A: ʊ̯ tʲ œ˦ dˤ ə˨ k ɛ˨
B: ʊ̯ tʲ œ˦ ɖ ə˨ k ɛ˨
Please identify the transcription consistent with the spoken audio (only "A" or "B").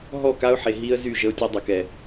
A